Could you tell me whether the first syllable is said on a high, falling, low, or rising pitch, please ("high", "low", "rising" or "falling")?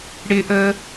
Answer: high